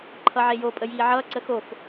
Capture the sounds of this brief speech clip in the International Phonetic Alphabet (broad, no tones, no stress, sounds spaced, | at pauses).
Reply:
ǃʰ ʌ ʕ e j o pʼ ə j iː ʕ ʌː ǀ ə x o f